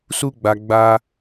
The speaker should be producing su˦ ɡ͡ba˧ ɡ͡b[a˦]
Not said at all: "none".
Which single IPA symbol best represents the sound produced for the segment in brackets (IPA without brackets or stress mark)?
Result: a˦